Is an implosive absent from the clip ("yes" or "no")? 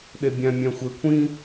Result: no